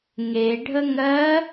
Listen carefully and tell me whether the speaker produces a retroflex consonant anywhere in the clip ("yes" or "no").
yes